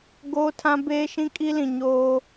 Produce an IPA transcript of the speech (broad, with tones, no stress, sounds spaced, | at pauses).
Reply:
ɡ oː˦ tʰ ã˦ b eː˦ ʃ ĩ˦ kʼ i˦ l ĩ˨ ɲ oː˦